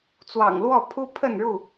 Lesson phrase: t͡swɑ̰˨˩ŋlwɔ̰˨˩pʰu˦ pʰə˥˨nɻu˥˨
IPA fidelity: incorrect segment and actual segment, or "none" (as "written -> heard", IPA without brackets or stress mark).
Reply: ɔ̰˨˩ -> ɔ˥˨